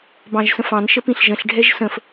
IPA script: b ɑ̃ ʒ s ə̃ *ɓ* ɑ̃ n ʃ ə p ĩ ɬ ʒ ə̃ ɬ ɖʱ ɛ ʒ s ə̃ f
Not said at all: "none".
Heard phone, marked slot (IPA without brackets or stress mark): f